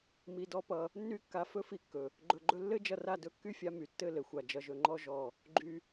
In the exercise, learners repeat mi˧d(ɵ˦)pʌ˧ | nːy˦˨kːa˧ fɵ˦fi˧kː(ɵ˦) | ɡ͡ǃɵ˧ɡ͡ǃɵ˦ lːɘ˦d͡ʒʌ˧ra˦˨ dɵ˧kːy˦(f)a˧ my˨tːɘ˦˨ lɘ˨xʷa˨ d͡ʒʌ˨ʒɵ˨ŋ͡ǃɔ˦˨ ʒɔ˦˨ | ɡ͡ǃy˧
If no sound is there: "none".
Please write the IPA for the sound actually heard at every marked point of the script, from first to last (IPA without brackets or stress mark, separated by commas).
ɔ˦, ɵ˨, fʲ